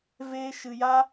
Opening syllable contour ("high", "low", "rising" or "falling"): high